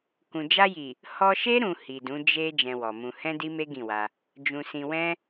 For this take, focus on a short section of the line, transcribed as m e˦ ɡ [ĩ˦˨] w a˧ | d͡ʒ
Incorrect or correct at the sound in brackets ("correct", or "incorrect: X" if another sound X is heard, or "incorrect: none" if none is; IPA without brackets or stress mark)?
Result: correct